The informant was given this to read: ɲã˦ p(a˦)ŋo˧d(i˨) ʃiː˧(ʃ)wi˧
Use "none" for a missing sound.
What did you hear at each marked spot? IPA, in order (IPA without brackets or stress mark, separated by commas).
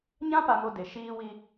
a˧, e˨, none